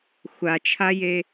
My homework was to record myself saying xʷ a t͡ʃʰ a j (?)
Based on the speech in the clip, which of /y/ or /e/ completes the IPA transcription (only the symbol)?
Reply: e